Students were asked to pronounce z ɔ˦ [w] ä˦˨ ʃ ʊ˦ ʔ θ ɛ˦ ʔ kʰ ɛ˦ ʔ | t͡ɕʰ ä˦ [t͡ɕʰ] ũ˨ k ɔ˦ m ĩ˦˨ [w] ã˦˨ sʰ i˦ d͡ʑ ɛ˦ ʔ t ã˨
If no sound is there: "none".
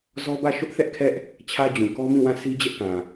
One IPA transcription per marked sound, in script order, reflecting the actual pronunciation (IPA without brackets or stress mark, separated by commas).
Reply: b, d͡ʑ, w